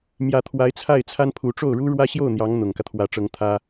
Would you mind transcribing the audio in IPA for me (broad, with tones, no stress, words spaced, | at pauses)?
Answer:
mjä˧˥t̪ʰwa˧˥ɪ̯t͡sʰa˥˩ɪ̯t͡sʰa˥n pʰu˧˥ ʈ͡ʂo˥˩ʊ̯ɻu˥ɻwä˥ ɕjo˥˩ʊ̯n̪jɑ˧˥ŋ n̪ʊ˨˩ŋkä˦t̪ʰwä˧˥ ʈ͡ʂɤ˧˥ŋt̪ʰä˥